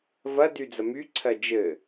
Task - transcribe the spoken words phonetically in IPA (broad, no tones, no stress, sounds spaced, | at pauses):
v ɐ d y d͡z ɐ m y ǀʰ ɜ d͡ʒ ɘ